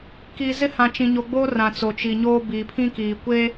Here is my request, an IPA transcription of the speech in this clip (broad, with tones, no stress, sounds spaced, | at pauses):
k i˨ z ɪ˦ h ã˨ t͡ʃ ĩ˨ ɲ o˨ ɡ͡b oː˦ r ã˨ t͡s o˨ t͡ʃ i˨ ɲ oː˦ b i˨ pʰ ĩ˦ k iː˨ kʷ e˦